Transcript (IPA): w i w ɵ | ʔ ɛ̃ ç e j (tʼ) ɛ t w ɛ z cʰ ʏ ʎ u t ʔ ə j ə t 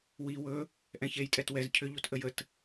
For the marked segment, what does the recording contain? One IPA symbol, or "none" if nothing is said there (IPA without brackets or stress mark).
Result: tʼ